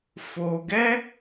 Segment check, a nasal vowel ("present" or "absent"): absent